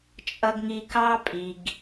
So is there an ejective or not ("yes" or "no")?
yes